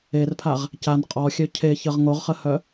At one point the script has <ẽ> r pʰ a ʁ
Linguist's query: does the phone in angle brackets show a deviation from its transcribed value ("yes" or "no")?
yes